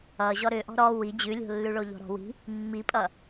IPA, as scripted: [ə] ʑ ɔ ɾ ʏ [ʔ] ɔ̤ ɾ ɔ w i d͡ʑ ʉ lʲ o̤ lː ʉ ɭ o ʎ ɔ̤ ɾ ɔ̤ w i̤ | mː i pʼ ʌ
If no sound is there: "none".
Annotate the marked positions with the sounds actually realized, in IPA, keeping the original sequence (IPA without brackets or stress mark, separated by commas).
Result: ʌ, ʔ